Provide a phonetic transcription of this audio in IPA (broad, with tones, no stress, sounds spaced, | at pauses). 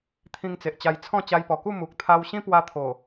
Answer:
t̪ʰ ĩ˧ ŋ t͡s e˨ ʔ t͡ɕ a˧ j t͡sʰ ɔ̃˥˧ t͡ɕ a˧ j p ɔ˨˩ k u˥˧ m u˨ k̚ t̪ʰ a˧ w ɕ ĩ˦ p w a˧ t̪ʰ o˨˩